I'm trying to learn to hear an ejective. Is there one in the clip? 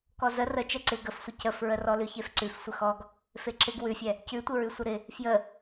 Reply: no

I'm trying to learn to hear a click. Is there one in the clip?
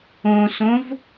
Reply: no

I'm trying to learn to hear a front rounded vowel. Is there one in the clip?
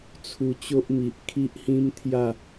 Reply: no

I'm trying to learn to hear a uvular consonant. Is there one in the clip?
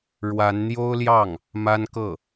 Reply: no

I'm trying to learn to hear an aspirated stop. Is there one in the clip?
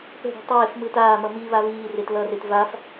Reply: no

